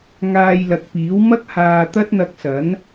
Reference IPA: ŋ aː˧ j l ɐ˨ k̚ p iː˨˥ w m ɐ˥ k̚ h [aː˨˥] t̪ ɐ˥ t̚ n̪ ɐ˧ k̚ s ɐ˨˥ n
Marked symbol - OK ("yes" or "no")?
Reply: no